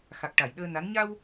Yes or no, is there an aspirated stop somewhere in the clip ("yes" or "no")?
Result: no